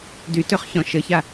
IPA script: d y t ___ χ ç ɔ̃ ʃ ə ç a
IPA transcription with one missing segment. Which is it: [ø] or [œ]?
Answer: ø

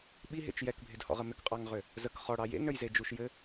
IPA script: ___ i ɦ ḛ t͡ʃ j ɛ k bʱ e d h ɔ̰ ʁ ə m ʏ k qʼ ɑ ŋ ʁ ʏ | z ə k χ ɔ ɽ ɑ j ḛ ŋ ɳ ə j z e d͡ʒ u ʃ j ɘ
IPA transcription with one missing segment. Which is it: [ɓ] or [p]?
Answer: ɓ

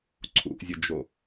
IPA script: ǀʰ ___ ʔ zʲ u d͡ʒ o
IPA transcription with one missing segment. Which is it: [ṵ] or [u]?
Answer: ṵ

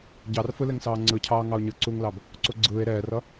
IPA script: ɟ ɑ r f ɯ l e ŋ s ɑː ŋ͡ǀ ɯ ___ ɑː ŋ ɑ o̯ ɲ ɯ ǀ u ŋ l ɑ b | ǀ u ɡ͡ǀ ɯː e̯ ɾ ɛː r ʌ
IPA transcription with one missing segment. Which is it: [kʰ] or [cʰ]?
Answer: cʰ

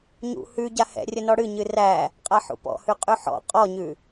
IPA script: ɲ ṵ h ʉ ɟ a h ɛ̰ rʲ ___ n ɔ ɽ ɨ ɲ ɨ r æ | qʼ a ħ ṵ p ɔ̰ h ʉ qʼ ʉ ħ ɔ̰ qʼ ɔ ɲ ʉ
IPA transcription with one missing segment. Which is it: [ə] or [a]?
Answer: ə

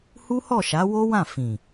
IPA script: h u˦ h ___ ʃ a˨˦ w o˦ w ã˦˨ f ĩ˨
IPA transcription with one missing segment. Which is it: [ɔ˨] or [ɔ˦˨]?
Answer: ɔ˦˨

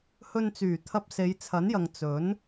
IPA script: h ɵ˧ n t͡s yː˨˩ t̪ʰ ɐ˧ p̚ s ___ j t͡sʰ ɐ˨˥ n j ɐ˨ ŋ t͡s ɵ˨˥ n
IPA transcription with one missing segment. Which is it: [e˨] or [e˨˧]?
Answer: e˨˧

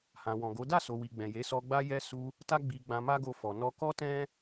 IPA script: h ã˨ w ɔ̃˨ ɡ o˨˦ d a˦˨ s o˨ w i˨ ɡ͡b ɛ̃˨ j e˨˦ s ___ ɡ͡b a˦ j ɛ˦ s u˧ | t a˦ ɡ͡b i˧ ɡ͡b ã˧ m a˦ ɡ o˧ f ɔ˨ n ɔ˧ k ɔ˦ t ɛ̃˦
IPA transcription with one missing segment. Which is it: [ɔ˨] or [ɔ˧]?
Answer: ɔ˧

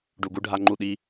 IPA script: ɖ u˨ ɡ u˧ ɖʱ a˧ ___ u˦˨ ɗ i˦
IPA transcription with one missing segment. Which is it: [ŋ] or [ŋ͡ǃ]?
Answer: ŋ͡ǃ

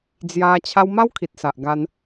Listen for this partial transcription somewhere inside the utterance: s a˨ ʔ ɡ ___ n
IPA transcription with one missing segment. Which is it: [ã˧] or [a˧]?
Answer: a˧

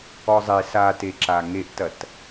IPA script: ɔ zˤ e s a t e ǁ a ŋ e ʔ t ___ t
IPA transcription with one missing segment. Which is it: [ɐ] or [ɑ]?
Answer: ɐ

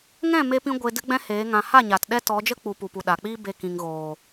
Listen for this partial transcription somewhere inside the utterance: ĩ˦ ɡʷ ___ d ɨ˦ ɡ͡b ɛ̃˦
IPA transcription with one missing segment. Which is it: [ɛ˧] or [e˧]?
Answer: e˧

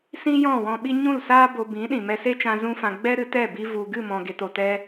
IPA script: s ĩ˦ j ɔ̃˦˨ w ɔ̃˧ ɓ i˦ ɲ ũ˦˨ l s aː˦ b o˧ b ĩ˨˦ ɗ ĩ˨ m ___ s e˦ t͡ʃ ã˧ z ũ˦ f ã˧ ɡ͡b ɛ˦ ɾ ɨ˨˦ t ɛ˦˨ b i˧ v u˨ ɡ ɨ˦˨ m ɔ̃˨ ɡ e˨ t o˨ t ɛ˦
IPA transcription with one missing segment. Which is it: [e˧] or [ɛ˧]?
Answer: ɛ˧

